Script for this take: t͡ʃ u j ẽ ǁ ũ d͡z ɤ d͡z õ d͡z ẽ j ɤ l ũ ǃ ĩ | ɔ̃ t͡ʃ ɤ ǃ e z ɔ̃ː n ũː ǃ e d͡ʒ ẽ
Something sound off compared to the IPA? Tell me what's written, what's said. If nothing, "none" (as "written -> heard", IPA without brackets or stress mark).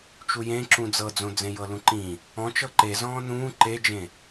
none